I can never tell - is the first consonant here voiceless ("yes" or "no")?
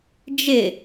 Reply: no